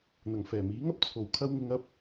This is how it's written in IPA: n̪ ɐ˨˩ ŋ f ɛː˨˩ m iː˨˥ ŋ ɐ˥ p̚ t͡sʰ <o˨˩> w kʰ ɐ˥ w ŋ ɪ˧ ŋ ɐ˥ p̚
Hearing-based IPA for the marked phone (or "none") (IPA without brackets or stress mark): o˨˩